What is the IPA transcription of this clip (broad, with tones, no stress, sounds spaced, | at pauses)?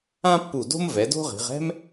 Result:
ã˥ pː u˧˩ d o̤˥ m v ɛ˩˧ d o̤˥ ʁ i̤˩˧ ʁ ɛ̤˥ m